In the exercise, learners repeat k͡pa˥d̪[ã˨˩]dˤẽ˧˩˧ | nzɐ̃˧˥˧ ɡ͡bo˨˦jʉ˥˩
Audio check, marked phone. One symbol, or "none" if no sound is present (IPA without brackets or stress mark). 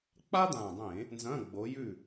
ã˨˩